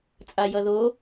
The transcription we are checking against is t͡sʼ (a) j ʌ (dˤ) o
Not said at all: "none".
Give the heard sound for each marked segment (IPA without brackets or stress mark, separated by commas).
a, ð